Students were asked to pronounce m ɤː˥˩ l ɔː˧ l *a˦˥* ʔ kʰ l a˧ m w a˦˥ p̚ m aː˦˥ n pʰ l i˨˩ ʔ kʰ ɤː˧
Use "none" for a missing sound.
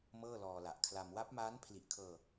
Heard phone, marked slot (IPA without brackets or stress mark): a˨˩